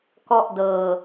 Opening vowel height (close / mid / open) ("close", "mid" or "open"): mid